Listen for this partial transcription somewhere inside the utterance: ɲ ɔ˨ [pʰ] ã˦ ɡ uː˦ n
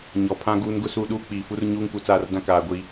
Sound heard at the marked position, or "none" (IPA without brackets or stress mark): pʰ